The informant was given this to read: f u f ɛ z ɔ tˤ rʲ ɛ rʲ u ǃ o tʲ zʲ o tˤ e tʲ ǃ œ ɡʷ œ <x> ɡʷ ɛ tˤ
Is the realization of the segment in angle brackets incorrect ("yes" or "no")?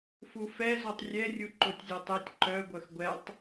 no